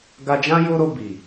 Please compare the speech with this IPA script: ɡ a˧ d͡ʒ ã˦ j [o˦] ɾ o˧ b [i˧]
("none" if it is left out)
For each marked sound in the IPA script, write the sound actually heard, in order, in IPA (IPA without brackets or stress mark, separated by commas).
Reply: o˦, i˨